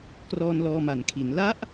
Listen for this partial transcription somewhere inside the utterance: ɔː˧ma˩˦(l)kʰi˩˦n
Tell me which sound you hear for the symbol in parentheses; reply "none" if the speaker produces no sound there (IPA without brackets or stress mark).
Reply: n